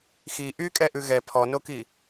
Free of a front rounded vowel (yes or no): no